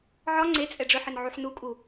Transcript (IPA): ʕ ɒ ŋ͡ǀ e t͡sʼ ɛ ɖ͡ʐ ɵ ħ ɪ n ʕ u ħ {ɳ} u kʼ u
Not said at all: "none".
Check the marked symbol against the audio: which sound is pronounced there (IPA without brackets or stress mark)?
n